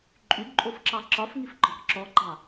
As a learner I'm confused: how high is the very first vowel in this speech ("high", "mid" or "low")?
high